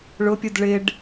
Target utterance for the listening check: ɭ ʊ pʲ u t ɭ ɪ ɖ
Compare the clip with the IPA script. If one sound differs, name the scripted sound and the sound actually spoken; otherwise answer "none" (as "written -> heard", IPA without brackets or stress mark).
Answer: t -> d